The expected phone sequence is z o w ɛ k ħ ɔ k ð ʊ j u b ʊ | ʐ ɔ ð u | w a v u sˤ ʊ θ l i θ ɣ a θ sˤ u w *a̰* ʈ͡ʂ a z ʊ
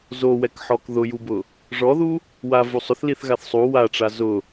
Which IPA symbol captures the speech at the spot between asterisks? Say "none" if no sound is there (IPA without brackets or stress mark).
a